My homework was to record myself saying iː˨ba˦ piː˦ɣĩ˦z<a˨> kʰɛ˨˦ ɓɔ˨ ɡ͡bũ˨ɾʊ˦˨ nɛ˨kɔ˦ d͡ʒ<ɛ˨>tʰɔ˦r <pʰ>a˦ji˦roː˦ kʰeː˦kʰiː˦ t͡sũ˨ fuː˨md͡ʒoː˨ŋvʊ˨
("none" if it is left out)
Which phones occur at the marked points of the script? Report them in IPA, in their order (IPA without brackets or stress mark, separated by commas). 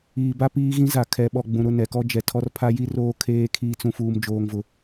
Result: a˨, ɛ˨, pʰ